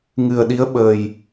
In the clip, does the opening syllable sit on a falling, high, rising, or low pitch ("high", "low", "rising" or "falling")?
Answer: low